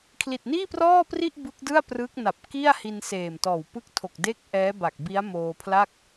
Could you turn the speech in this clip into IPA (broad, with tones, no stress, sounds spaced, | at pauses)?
kʰ l i˨˩ t̚ n iː˥˩ p r ɔː˥˩ p r i˥˩ ʔ b ɯ˦˥ k̚ d ɯ˥˩ a̯ p r ɯː˦˥ k̚ n a˨˩ p̚ k i˥˩ a̯ h i˧ n s eː˨˩ m t ɔː˨˩ w p ɯ˥˩ k̚ tʰ o˨˩ k̚ d eː˥˩ k̚ ʔ ɛː˦˥ b a˨˩ k̚ b i˦˥ a̯ m oː˧ pʰ l a˥˩ k̚